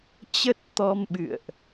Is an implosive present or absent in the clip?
present